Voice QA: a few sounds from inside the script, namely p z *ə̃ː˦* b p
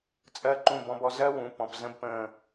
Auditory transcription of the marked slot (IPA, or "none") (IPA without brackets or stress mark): ə̃˦